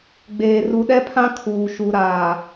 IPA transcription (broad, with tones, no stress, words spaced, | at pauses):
ɡ͡beː˨ ru˨ɗɛ˦pʰã˦ kʰuː˨ʃu˨ɾaː˨